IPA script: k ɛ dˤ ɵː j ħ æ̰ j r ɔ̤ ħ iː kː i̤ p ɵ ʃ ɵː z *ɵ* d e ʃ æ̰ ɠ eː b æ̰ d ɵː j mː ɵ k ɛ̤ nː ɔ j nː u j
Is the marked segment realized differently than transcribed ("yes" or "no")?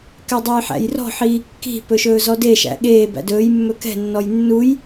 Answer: yes